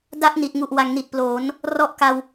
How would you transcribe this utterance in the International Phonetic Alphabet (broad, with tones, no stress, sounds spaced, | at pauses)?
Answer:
d a˥˩ ʔ n i˨˩ t̚ ŋ u˨˩ ʔ w a˩˦ ŋ n i˨˩ t̚ p l oː˩˦ n | r ɔ˦˥ ʔ k a˧ w